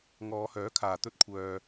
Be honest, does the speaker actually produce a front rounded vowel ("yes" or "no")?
yes